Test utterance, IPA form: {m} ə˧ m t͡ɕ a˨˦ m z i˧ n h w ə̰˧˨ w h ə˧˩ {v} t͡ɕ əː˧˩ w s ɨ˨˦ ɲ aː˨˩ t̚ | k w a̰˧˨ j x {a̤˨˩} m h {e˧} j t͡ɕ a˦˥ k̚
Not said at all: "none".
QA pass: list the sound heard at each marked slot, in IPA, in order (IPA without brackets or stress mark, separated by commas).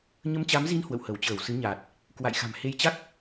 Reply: ɲ, w, a̤˨˩, e˧